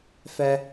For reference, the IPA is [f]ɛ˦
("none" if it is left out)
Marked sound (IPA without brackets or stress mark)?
f